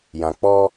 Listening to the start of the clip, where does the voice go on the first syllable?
low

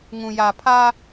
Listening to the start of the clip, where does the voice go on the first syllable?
low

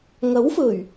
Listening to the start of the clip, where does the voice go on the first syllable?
rising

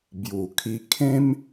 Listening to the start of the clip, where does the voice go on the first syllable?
low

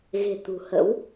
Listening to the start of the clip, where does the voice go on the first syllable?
low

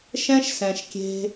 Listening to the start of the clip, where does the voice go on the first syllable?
high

